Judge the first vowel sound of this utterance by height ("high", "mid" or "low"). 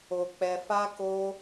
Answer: mid